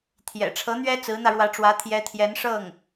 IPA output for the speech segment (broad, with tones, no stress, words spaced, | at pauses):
t̪ʰjɛ̰˨˩ʈ͡ʂʰɤ˧˥ n̪ɥɛ˥ t͡sɹ̩˧˥n̪ä˧ɻwä˧˥ʈ͡ʂwä˧˥ t̪ʰjɛ˧˥t̪ʰjɛ˧˥n ʂɤ˥˩ŋ